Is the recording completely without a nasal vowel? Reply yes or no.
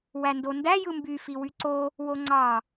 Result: yes